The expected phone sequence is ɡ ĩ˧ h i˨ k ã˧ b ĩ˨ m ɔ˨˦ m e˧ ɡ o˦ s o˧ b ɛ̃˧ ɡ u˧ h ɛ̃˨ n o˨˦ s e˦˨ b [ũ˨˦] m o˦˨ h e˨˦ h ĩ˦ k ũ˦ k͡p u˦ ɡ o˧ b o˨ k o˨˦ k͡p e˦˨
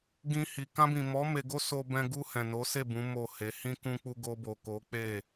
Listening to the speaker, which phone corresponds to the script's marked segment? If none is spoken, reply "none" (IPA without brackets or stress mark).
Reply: ũ˨˦